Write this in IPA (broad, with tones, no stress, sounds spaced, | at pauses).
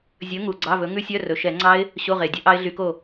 zʲ ɵ˨˥ ŋ u˨˩ ɡ͡ǀ ɑ˧˥˧ v ɵ˨˥ ŋ ʉ˦˥ sʲ œ˧˥˧ r ɵ˨˩ ʃ ɛ˧˩˧ ŋ͡ǀ ɑ˦˥ ɪ̯ | ɕ o˧˥˧ ʁ e˨˩ dʲ ɵ˨˥ ʔ ɑ˦˥ ɪ̯ ɮ y˧˩˧ k o˥˩